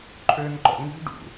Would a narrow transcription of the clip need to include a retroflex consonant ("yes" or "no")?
yes